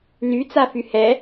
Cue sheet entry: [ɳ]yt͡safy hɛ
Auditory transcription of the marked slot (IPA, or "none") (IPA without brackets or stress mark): n